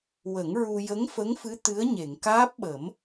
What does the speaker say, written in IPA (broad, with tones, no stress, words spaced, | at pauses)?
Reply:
wə˨˩˦ŋ ɹu˧ jə˧˥ŋfə˧˥ŋfɨ˧˥ t̪ɨ˧˥ə̯ɲe˨˩˨ŋ kaː˦˥p̚ɓə˨˩˦m